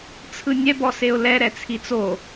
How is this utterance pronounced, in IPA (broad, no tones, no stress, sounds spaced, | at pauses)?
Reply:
t͡sʰ ɯ nʲ ɛ b ɔ s e ʊ̯ l ɛ ɾ ɛ t͡sʰ i t͡s o